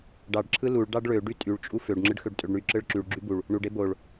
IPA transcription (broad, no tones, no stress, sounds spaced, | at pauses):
ɖ ɑ ɖ ǁʰ ɯ l u ɭ ɖ ɑ ɖ ɭ ø ɖ y tʼ y ɭ t͡ʃʼ u f ø ɖ ŋ͡ǁ ɯ ɖ x ø ɖ tʼ ø ɖ ɳ y ǁ ɯ ɭ ǁ y ɭ ɡ͡ǁ y b u ɭ | ɳ u ɖ e b o ɭ